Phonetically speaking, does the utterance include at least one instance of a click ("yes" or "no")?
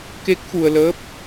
no